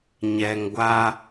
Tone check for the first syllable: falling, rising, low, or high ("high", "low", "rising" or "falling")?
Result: low